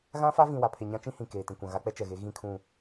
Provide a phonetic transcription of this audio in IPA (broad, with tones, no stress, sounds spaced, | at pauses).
ɣ ã˦ f a˦ v ĩ˨ w a˨ pʰ e˨ ɲ ã˦ t͡ʃ ĩ˦ h ĩ˨ k eː˨ t ĩ˨ kʷ ã˨ ɣ a˦ k͡p ɛ˦ t͡ʃ ɛ˨ ɣ e˨˦ ɣ ĩ˦˨ kʰ ũ˦˨